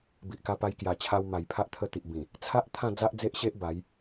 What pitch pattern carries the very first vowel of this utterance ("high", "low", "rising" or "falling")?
low